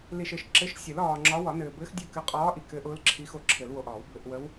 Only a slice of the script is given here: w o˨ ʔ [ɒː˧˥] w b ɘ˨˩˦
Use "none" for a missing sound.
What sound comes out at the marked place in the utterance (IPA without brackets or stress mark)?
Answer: ɒː˨˩˦